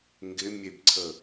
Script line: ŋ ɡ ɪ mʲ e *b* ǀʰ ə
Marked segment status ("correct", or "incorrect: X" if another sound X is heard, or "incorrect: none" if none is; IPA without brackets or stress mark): correct